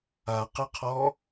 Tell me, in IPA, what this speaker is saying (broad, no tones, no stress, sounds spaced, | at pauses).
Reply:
a q ɯ qʰ ɔ